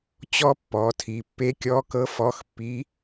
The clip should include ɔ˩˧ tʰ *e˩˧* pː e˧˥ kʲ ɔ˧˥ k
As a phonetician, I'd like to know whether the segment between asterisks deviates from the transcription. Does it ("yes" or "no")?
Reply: yes